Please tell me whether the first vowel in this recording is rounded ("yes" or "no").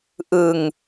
no